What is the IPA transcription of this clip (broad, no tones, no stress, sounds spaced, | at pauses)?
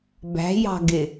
b æ̤ j ɑ̤ ɡ ɪ